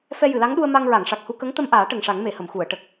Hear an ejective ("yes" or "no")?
no